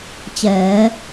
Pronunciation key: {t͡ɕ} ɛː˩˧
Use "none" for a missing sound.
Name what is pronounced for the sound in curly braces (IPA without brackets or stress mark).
t͡ɕ